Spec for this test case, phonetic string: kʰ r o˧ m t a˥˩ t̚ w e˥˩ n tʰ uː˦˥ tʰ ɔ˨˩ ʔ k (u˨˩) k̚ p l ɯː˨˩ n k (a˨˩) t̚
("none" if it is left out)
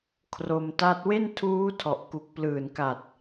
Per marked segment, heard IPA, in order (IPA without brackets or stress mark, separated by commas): u˨˩, a˨˩